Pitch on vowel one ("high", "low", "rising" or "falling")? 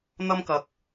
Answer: high